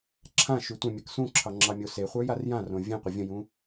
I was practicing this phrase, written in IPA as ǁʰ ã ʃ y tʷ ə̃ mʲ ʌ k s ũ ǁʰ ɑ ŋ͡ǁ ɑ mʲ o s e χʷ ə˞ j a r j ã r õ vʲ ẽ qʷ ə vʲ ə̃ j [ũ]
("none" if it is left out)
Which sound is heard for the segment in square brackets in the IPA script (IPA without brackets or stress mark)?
ũ